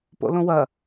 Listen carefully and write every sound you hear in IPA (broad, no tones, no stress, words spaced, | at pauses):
po̰lõwɐ